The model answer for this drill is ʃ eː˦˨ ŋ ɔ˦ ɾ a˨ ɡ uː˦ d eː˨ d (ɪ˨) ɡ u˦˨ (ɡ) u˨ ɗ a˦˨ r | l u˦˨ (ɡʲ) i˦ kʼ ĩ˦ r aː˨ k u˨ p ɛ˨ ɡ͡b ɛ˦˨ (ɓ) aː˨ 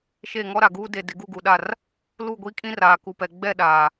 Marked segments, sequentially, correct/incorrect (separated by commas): correct, correct, incorrect, incorrect